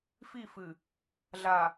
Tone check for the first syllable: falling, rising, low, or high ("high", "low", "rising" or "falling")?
falling